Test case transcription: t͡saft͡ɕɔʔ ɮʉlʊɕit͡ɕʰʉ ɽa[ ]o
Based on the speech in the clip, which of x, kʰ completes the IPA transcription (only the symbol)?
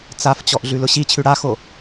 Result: x